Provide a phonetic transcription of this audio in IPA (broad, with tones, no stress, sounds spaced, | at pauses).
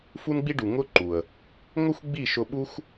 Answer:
f u˦ n ɡ͡b i˦ ɖ u˨ ŋ ʊ˦ ǃ u˨ ə̯ | ŋ o˦ xʷ ɡ͡b i˦˨ ʃ ʊ˧ ɓ u˦ xʷ